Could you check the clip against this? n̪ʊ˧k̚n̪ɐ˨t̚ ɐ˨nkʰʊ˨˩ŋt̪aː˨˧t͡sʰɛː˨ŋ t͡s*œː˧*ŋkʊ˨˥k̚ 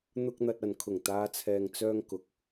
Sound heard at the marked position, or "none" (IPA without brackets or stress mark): œː˧